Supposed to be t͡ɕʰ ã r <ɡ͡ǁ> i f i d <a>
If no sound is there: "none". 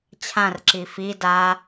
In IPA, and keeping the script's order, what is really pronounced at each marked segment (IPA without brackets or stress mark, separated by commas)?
ǁ, a